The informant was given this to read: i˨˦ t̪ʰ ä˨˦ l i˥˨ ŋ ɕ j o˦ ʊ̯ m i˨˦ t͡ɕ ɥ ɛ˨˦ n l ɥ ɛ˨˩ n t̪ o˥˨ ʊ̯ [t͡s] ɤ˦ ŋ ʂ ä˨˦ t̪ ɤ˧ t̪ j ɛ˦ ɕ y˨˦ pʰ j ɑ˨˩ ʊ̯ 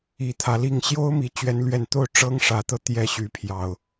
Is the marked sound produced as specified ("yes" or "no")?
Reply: no